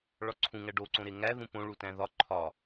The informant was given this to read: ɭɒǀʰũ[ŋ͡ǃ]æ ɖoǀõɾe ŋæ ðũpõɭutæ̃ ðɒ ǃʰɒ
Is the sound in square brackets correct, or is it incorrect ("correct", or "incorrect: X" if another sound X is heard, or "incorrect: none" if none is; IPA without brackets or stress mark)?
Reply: incorrect: ŋ